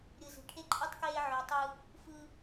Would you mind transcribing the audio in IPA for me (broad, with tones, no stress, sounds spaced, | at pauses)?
ɾʲ ɯ˨ z i̤˨ ʈʰ e˦ ǃʼ ɯ˦ tˤ k eː˦ ʕ ø˧ tˤ ɯ˦ | f ɯ˦